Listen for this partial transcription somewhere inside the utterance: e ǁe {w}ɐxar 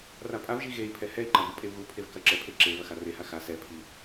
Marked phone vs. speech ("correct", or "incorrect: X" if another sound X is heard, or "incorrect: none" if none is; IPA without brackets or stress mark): incorrect: v